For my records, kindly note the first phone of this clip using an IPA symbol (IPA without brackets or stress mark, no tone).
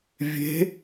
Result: vʲ